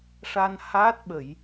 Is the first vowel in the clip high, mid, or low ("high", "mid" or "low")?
low